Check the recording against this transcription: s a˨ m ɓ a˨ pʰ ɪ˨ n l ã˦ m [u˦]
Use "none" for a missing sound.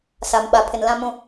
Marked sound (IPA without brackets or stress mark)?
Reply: ũ˦